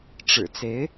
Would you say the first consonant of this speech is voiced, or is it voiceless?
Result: voiceless